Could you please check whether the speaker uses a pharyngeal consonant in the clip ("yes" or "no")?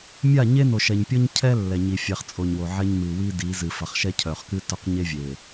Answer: yes